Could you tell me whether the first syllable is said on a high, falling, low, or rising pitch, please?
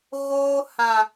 high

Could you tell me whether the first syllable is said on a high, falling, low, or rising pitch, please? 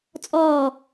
falling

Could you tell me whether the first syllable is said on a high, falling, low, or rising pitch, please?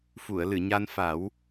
low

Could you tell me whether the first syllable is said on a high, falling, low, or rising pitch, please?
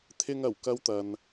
high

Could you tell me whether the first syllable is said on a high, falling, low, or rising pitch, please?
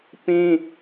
high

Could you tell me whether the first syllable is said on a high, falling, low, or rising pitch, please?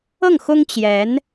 falling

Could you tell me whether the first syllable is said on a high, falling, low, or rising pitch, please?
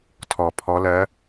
low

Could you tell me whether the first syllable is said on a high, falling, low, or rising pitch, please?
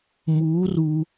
rising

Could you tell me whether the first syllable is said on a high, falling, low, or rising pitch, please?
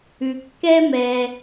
low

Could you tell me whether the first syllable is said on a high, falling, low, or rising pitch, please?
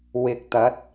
low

